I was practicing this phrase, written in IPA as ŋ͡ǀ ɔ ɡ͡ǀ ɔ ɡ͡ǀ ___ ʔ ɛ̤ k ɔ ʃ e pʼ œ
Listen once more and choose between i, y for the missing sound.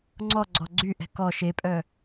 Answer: y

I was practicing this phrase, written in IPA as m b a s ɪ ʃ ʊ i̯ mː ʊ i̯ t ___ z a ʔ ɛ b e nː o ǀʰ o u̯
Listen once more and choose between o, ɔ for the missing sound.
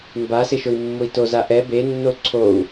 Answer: o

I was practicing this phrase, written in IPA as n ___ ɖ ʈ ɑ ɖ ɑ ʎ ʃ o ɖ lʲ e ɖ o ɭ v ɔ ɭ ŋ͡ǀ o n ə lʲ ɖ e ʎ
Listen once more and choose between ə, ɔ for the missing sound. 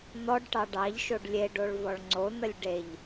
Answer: ɔ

